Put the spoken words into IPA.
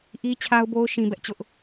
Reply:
ʔ i˦ t͡ɕʰ a˦ ʊ̯ b o˦ ʊ̯ ʃ ĩ˦ b ɛ˦ ʔ t͡ɕ ʊ˦ ʔ

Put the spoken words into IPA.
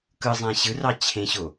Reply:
k ɯ zˤ æ̃ ɕ ɯ r ɑ t͡ɕʰ ẽ ɕ o

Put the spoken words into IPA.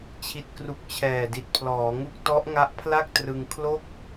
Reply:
t͡ɕʰ i˨˩ t̚ k r u˨˩ k̚ t͡ɕʰ ɛː˨˩ d i˨˩ t̚ pʰ l ɔː˩˦ ŋ u˥˩ k̚ t ɔ˦˥ ʔ ŋ a˦˥ ʔ pʰ l a˥˩ k̚ t r ɯ˧ ŋ kʰ l o˥˩ k̚

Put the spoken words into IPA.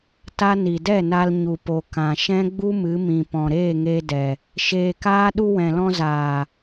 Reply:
t a˦ n i˨ d ɛ˦˨ n a˧ l ɲ u˨ p o˨ k ã˨ ʃ ɛ̃˦ ɡ͡b u˦ m ɨ˨˦ m ĩ˨ p ɔ̃˨ ɾ eː˦˨ ŋ e˧ d ɛ˨ | ʃ eː˧ k aː˦ ɗ u˧ w ɛ̃˨ l ɔ̃˧ z aː˨

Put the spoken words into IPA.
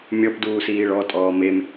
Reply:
mʲ ɔ p d uː s iː ɭ ɔ tʼ ɔː m e m

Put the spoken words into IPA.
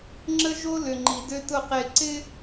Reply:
ŋ͡ǁ ə˦ ʒ o˦ l ʏ˨ ŋ͡ǃ i˨ d ø˦ t ʊ˦˨ q e˦˨ ǀ ɪ˦

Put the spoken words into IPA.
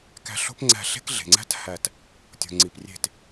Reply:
k æ̤˦˨ ɬ o̤˥ p ŋ͡ǀ æ̤˦˨ ɬ e̤˥ k ɮ e̤˨ ŋ͡ǀ æ̤˥ t h æ˦˨ t | tʲ o̤˨ ŋ͡ǀ i˨ p rʲ e̤˦˨ t

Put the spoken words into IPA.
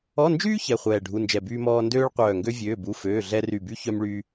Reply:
ɔ˧˥˧ n d͡ʒ yː˥ ç ɛ˧˥˧ χʷ ɛː˦˨ ɖʱ u˧˥˧ n d͡ʒ ɛ˦˨ b yː˥ m ɔː˥ n d øː˥ ɭ qʷ œː˦˨ ŋ ɡ ø˥ vʲ øː˧˥˧ b u˧˥˧ f øː˧˥˧ ɮ ɛ˥ r y˦˨ b y˥ ç œ˥ m ɭ y˥

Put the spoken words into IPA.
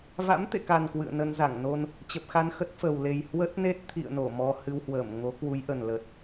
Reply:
v a̰˧˥ m t̪ ḛ˧˨ k a˨˩ n k w ɨ̰˧˨ ə̯ n ə˧ n z a˧˩ ŋ n o˧ n | t͡ɕ ə˨˩ p̚ x a˧ n x ə˦˥ t̚ f ə˨˩ w l e˨˩ j h w ə˦˥ t̚ n e˦˥ t̚ t̪ʰ ḭ˧˨ ə̯ n o˧˩ m ɔ˧ h ɨ˧ w h w əː˧˩ m ŋ o˨˦ k w u˨˦ j ʔ ə˨˩ n l ə˨˩ t̚

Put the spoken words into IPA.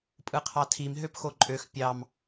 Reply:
pʼ ɯ qʰ ɑ tʰ i m ɦ ø p x o ǃʼ ø x pʲ ɑ m

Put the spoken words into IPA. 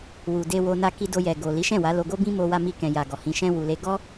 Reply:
w u˨ d e˧ w o˧ n a˧ k i˧ d o˧ j ɛ˨ ɡ o˨ l i˨˦ ʃ ɛ̃˦˨ w a˨˦ l o˧ ɡ o˦ b ĩ˦ m o˧ w a˧ m i˧ k ɛ̃˨ j a˨ ɡ ɔ˨ h ĩ˨˦ ʃ ɛ̃˦ w u˧ l e˦ ɡ ɔ˦

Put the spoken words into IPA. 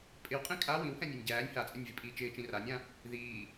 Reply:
pʼ ɪ w qʼ ĩ kʼ a w ĩ w h ɛ̃ nʲ e nʲ ɟ æː nʲ h a t͡sʼ ɛ̃ nʲ v i pʼ iː t͡ʃ ɪː t͡ʃ ĩ r a nʲ ã | ð iː

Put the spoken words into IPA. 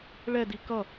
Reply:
ɭ ɛ d i k ʌ

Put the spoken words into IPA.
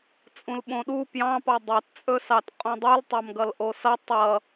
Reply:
t͡sʼ ũ l ɓ õ ɗ u p j ɑ̃ p ɑ dˤ ɑ t t͡sʼ ɵ s ɑ t qʼ ũ dˤ u l tˤ ɑ m ɡ ʌ l ʔ o s ʌ tˤ ʌ

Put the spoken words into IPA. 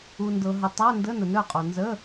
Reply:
u˨ n d ɤ˨ ɦ ə˨ tˤ a˧˥˧ n d ə˧˥˧ n ə˨ n œ˥˩ qʼ o˨ n z ə˧˥˧

